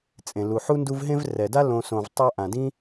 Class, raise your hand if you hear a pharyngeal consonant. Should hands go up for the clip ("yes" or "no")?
yes